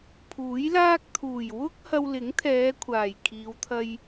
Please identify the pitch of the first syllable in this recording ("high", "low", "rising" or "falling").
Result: rising